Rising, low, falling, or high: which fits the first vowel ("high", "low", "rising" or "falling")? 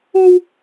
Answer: high